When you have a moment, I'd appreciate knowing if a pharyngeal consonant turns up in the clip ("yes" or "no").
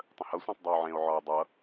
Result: yes